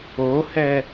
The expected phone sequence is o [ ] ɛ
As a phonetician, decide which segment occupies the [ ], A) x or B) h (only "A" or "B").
B